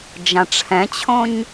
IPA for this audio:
d͡ʒ ã ʈ͡ʂʰ ɛ̃ t͡ɕʰ õ ɲ

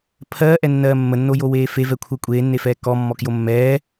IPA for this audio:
pʰ ɜː ʔ ɛ nː ɜː mː ə nː o j o w eː f e v ɛ kʷʰ ɜ kʷʼ eː nː e f ɛː k ɔ mː ɔ k j o mː ɛː

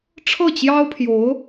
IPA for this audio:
ʈ͡ʂʰ ɤ˥˩ t͡ɕ j ɑ˥ ʊ̯ pʰ j o˧˥ ʊ̯

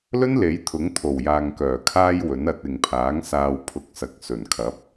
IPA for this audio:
l ɵ˥ n l e˨˥ j t̪ʰ ʊ˨˥ ŋ t̪ʰ o˨˩ w j aː˨ ŋ k œː˨˩ kʰ aː˧ j w ɵ˨˥ n ɐ˨˥ t̚ ɪ˨ ŋ pʰ aː˨˥ ŋ s aː˨ w pʰ ʊ˨ k̚ s ɐ˨ k̚ s ɵ˨˩ n kʰ ɐ˨˥ p̚

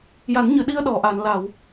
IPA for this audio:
j a˨˩˦ n ɲ ɨ˨˩˨ ɗ i˧ ə̯ ɗ ɔ˨˩˨ ʔ a˨˩˨ n l a˨˩˨ w

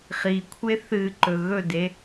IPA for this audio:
χ i kʷʰ e θ ɨ ǃ ɵ ɣ ɵ d e

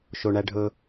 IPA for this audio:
ʃ o ɳ æ ɖʱ ɵ

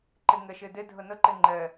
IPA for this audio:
ǃ e ŋ ɛ ʃ e d e dʱ ə n ə ǃ e ŋ͡ǃ ɛ

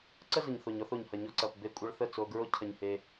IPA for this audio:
ǀ ə˦ z ə˨ ɲ θ o˨ ɲ ɔ˧ θ o˨ ɲ h ɐ˨ ɲ ɔ˧ ǀ ɐ˨ p b e˧ kʷʼ ə˧ ɭ θ ə˦˨ t͡s o˧ ɡ ɹ o˦ cʰ ɐ˧ ɲ h e˧

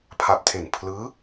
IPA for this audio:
pʰ a˨˩ p̚ tʰ e˨˩ n pʰ l ɯː˦˥

